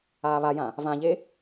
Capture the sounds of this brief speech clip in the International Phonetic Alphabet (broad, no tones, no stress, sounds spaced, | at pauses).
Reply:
aː β a j ã | v ã ʎ e